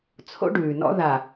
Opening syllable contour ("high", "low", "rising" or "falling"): high